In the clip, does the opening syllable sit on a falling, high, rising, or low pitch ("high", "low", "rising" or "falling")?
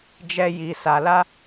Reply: high